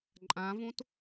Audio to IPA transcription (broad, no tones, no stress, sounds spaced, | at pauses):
ǃʼ ã v õ t